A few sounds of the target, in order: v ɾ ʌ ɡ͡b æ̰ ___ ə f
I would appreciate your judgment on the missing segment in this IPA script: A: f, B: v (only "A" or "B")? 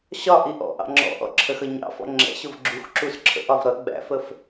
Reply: A